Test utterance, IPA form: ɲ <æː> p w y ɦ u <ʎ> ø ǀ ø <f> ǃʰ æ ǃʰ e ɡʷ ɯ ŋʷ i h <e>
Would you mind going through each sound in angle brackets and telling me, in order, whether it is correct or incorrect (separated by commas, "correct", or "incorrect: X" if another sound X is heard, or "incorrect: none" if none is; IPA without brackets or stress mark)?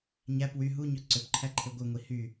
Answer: incorrect: æ, incorrect: ɲ, incorrect: p, incorrect: y